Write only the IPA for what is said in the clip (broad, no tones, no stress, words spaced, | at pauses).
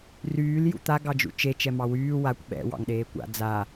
ryːl jṵt̪a ɡɑd͡ʒṵt͡ʃe t͡ʃɛmɑwyː wakʷ ɓɛ̰ wɑ̰ŋɗeːkʷa̰ d͡za